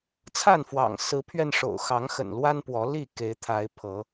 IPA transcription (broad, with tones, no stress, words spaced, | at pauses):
t͡sʰa˥˨nfwɑ̰˨˩ŋ sɹ̩˨˦pʰɥɛ˧n ʂo̰˨˩ʊ̯xɑ˨˦ŋ xə̰˨˩n lwa˦npwɔ˨˦li˥˨ ke˨˦ɪ̯t̪ʰa˨˦ɪ̯pʰɤ˨˦